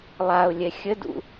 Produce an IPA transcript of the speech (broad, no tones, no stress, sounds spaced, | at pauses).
lˠ a ʊ̯ lʲ ɛ xʲ ə d ṵ